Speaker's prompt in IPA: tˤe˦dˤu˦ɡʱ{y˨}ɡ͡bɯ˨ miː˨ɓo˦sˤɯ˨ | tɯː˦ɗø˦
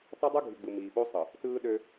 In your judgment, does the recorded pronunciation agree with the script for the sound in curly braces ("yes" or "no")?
yes